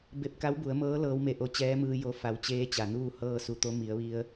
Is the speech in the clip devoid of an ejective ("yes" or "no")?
yes